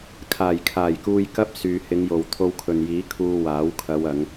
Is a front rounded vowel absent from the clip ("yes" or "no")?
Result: no